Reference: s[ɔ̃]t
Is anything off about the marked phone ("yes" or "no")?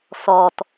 yes